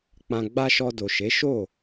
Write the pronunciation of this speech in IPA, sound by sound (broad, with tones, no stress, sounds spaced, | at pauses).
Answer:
k͡p ã˧ ɡ͡b a˦ ʃ ɔ˧ d o˨ ʃ e˨˦ ʃ o˦˨